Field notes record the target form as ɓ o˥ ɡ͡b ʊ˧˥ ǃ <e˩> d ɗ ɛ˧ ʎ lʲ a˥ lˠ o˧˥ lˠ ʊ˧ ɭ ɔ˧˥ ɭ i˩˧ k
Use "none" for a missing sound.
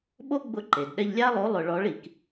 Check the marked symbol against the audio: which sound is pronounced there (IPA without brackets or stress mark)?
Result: e˩